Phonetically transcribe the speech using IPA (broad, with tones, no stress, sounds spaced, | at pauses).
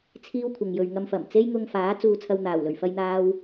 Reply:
t͡sʰ iː˥ w kʷʰ ɐ˨ ŋ j ɵ˨ ɥ ŋ ɐ˧ m f ɐ˨˩ m t͡s e˥ j ŋ ʊ˧ ŋ f aː˨˥ t͡s uː˧ t͡sʰ ɐ˧ w n̪ aː˨˩ w l ɵ˨˩ ɥ f ɐ˥ j n̪ aː˥ w